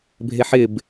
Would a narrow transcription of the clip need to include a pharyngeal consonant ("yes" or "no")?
yes